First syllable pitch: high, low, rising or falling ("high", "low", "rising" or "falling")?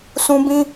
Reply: high